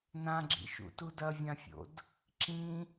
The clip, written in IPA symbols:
n ã ɡ͡ǁ ḭ ʃ ṵ t u d ɐ vʲ ã fʲ o̰ d | ǁ ĩ

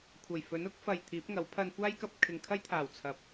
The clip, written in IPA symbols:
kʷʰ ɐ˨˩ j f ɵ˨˥ n ʊ˥ k̚ f ɐ˨ j t̪ʰ iː˨˥ p̚ ŋ ɐ˨˥ w pʰ ɐ˧ n kʷ aː˥ j k ɐ˧ p̚ kʰ ɪ˨ ŋ kʰ ɐ˥ j t̪ʰ aː˨˩ w t͡sʰ ɐ˨ p̚

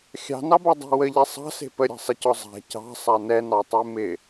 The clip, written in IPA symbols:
xʲ ɑ̤ n ɑ b ɔ dˤ a̤ w ə ʎ ɛ sˤ ɑ̤ s e̤ p ə ɾʲ a̤ sˤ ɪ c ɔ zˤ a̤ c ɑ̤ sˤ a n ɛ n ɑ tˤ e m ɪ

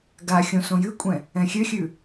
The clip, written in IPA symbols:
ɡ a xʲ õ s õ j ɨ kʷʼ ɛ̃ | ɛ̃ xʲ ø xʲ ʉ

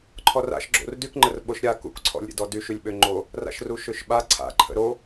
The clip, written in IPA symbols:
ǃʰ ɔ r a̰ ʃ ɡ͡ǁ o̰ r d y k ŋ͡ǃ ə r ɓ o ʃ ɾʲ a k ṵ k ǀʰ ɔ̰ lʲ ɾʲ ə̰ d ɔ d y ʃ y lʲ ɓ ø ŋ͡ǃ o | r a̰ ʃ r u ʃ ø ʃ ɓ a ǀʰ a̰ ǃʰ ə̰ ɾ o

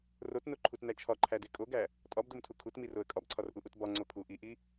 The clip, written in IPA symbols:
r o t n o ǃʰ u t n æ t͡ʃʰ ɒ ǃʰ æ d e kʼ o ɡ æ | tʼ ɒ b d o m tʰ u kʰ u t m i r o ə̯ kʼ ɒ b ǀʰ ɒ r ʔ u ʔ u t b ɒ ŋ͡ǀ o pʰ u ʔ i ʔ i

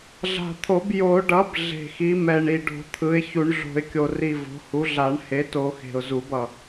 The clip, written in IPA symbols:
ɮ a̤˨˩ t̪ʰ o˨˩˦ b j o˨˩˦ ɖ ʌ˩˥ b ɮ e̤˨˩ x i˩˥ m ɛ˨˩ ɳ i˨˩ ɖ o̤˨˩˦ t̪ʰ ɯ˩˥ ɪ̯ ç u˨˩˦ ɳ ɮ o̤˨˩˦ ɪ̯ kʲ o˨˩ r i˨˩ v o̤˩˥ h u˩˥ ɮ a˨˩˦ ɳ h e˩˥ t o˨˩˦ x e̤˨˩ ʊ̯ z u˨˩˦ b ʌ˨˩

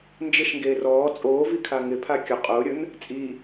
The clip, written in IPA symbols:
n d͡ʒ ɪ ʃ ŋ ɡ eː r ɔː t͡sʼ oː v i kʰ a ŋ ɪ pʰ a kʲ ʊ qʼ ʊː ɾʲ ʊ n | t͡sʼ i

